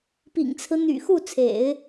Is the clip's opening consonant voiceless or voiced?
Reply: voiceless